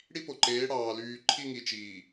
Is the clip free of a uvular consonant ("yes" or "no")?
yes